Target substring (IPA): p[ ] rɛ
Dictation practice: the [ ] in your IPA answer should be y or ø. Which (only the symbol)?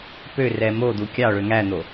ø